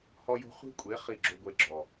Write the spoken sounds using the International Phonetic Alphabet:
hɔ˦jo̤˦ χʷi̤˦kʷʼe˨˦ χi˦˨ɡ͡ǁo˦ɡʷe˦ ɡ͡ǁɔ˨

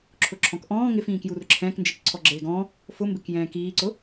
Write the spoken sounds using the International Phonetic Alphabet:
ǁʰʊǁʰɔ̃kʔɔ̃ː ŋɪfĩːkjur ǁʰɛ̃ːknd͡ʒik ǀʰɔɡ͡ǁeːɡɔ̃ | fʊmbɪk jɛ̃ːkiːǀʊ

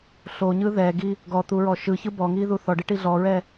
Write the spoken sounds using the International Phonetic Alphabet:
ɬoɲɯ ðɛɡi | ɡɔt̪uɹɔ ʃɯçɯ bɔŋiðu θɔɖiʈi ɮɔɹɛ

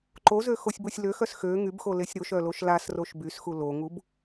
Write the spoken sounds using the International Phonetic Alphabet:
ǃozøxosʲbosʲ løxœs xø ŋybxolesʲ ɾoʃœloʃ lasroʃ bysxu loŋub

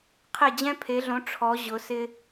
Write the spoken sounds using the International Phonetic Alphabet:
qʰe˥˧d͡ʑɛ̃˥pʰe˧˥ɮõ˧˥ ʈ͡ʂʰɔ˧˥ʑʊ˧˥ sɪ˥

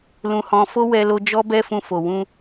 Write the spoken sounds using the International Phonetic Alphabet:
lũ˧hɔ̃˧ fo˦wɛ˧lo˧ d͡ʒɔ˧bɛ˧fũ˨ fo˨wũ˧

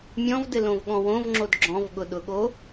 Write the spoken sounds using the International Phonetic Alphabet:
mʲɔ̃vdɘlõvɠɔ̃ wõvŋ͡ǁod ɡ͡ǁɔ̃vɠʊɗʊɠo

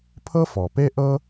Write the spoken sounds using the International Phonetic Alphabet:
pʰɤ˥fɔ˩pe˥ ʔɤ˥

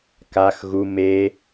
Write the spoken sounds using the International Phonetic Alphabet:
kax ɣu me

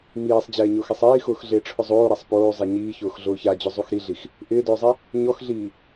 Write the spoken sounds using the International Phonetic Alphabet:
miːsˤd͡ʑɛːɲʊːxɛsˤ iːxʊːxɮɪːʈ͡ʂʰʊ zˤoːɾasˤ poːzˤɛ ɲiːçʊːx ɮʊːçad͡ʑʊ zˤuxɾiɮix | ʔɪːdʊːzˤɛ | ɲɔxɮiː

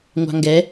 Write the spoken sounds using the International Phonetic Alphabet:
ŋʷɑ̤ŋɡɛ

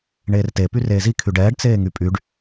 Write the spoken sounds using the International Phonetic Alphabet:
ɳeːrte pyreːzi kʰyɖɛːɖ t͡seːŋypʼyɖ

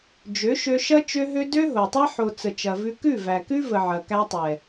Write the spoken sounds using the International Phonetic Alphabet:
d͡ʒø˨˦ʃø˧ʃɐ˦ t͡ʃø˦ɦø˦ dø˦ɦo˨tˤɐ˦ ħo˨ t͡sə˨t͡ʃɐ˨vʉ˧ kʉ˦˨væ˨kʉ˦və˨ ʕɐ˨ kæ˧tˤɛ˨

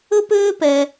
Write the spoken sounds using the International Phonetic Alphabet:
ɵ˥pøː˥pɛ˧

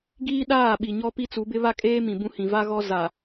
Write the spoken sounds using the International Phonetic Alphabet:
ɡiː˦ɗaː˦˨ɓi˨ ɲɔ˦pi˦t͡su˨˦bɪ˦ βa˦kʼeː˦ mĩ˨bũ˦hĩ˨ va˦ɣɔ˦ za˨

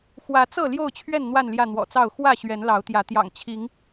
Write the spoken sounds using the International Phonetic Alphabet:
xwä˨˦t͡sɤ˥˨ ljo˥˨ʊ̯t͡ɕʰɥɛ˥˨n n̪wa˥˨nljä˥˨n̪wɔ̰˨˩t͡sɑ˥˨ʊ̯ xwä˥˨ ɕɥɛ˨˦nlɑ˨˦ʊ̯t̪jä˨˦ t̪jɑ̰˨˩ŋt͡ɕʰi˨˦ŋ

